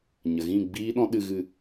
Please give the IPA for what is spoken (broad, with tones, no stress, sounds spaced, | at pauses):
ɲ ə˨ ɣ ĩ˦˨ ɡ͡b iː˦ ɗ ɔ̃˦ ɗ ɨ˧ ɣ ɨ˧